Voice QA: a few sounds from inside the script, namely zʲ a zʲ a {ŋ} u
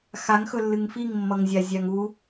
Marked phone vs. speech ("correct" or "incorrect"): correct